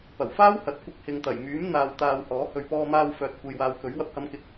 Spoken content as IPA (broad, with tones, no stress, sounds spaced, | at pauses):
p ɐ˨˩ w f aː˥ w h ɐ˨ t̚ kʷ ɪ˧ k̚ h ɪ˨ ŋ t̪ ɐ˨˩ j m yː˨˥ m n̪ aː˧ w t̪ aː˧ w h ɔː˨˥ h ɵ˨ ɥ p ɔː˧ m aː˧ w f œː˨ t̚ kʷ e˨ j w aː˨˧ w k ɵ˨˥ ɥ w ɐ˧ p̚ h ɐ˨˧ m k ɪ˨ k̚